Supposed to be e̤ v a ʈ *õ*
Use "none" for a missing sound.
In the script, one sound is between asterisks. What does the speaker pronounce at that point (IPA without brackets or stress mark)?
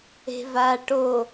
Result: o